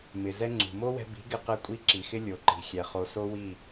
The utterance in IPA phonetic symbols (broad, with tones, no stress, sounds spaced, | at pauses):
m ɪ˨ z ɛ˧ ŋ͡ǀ ṳ˨ m o˦ w ɛ̤˧ b i̤˨˦ ɡ ɪ˦ q ɛ˦ kʷʼ i˦ ǁ i˨ x ɪ˦ lʲ o˨ ǃ i̤˨ xʲ ɛ˨ χ o˨ s o˦ w i˦˨